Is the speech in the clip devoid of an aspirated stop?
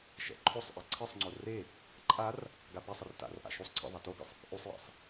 no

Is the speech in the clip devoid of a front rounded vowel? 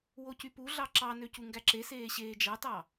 no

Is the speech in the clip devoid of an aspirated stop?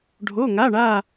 yes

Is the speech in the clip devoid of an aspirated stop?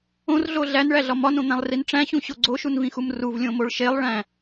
yes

